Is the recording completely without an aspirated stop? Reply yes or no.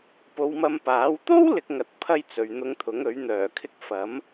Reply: no